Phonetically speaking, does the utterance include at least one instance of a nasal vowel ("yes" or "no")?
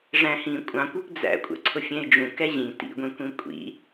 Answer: yes